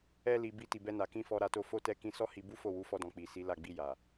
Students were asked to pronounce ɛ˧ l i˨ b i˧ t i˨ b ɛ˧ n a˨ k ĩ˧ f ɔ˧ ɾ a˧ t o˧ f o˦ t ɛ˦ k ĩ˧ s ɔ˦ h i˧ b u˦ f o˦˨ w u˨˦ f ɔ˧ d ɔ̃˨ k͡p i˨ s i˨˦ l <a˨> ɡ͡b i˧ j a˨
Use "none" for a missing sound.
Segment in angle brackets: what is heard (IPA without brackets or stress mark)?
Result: a˦˨